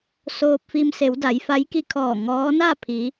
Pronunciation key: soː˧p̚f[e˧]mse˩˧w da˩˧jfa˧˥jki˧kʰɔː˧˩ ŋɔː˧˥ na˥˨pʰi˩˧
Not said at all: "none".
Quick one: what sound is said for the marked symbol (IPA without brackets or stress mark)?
i˧